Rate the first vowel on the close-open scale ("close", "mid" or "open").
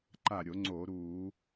open